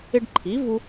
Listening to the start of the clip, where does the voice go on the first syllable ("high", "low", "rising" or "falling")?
high